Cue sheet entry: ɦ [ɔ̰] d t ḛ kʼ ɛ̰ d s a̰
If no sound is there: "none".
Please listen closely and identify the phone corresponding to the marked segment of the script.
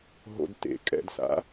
o̰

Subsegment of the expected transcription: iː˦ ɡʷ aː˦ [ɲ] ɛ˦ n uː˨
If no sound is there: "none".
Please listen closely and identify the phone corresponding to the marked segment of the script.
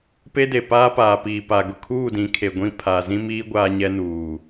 ɲ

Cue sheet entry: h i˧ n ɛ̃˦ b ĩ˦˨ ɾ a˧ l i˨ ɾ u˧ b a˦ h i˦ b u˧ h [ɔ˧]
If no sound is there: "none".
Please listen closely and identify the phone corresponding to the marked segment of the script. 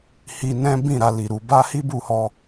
ɔ˧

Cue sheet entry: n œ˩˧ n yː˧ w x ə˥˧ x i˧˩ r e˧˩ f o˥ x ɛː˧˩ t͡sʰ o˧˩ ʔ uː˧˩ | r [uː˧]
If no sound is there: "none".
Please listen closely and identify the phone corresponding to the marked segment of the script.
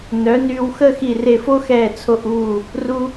u˧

